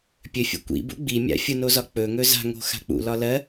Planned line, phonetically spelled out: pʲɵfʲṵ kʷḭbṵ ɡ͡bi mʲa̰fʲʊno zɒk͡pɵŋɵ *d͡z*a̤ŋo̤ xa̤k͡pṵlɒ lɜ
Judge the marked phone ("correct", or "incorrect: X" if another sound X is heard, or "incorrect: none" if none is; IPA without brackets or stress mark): incorrect: z